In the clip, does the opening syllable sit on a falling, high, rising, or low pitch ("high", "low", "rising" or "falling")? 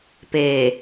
low